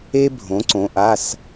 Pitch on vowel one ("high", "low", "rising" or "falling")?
high